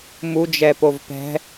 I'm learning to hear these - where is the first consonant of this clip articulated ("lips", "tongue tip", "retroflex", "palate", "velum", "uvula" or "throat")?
lips